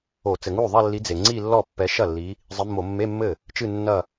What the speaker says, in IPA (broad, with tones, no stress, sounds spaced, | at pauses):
o˧˩˧ t͡s ɘ˩ ŋ u˥˩ ðˤ ɐ˥˧ lː i˨˦ d͡z e˩ ŋ͡ǀ i˥˧ lː ɔ˥˩ pː ɛ˨˦ ʃ ɐ˥˩ lː i˨˦ | zˤ ɨ˨˦ mː o˧˩˧ mː e˧˥˧ mː ɘ˥˩ | t͡ʃ ɨ˥˧ nː ɐ˥˧